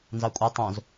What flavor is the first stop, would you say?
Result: ejective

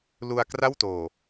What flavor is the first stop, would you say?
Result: plain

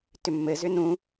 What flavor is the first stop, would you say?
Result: plain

